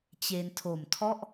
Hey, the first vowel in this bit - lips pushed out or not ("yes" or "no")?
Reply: no